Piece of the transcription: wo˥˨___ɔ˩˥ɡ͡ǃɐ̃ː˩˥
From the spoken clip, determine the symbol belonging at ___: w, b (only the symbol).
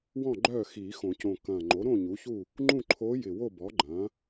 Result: b